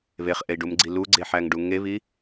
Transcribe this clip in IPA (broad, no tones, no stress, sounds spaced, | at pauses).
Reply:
β e χ ʔ e i̯ ɖ u m ɡ͡ǀ i l u ɡ͡ǀ e ħ æ ŋ ɖ u ŋ e β i